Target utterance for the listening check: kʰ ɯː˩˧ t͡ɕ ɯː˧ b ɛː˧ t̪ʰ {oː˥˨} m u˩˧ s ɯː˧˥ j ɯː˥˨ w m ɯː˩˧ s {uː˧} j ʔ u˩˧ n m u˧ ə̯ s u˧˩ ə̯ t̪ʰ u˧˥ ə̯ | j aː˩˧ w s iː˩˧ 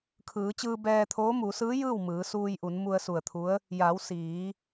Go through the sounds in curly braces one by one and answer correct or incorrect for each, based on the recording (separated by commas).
incorrect, correct